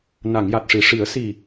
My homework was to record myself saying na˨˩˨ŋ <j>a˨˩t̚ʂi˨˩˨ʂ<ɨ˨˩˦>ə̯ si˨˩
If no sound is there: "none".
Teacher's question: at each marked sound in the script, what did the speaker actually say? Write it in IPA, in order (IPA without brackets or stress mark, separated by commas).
j, i˨˩˦